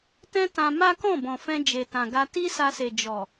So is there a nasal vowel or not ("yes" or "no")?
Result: yes